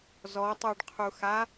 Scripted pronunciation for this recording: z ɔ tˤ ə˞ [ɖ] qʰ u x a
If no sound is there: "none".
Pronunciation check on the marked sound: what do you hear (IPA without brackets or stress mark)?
ɖ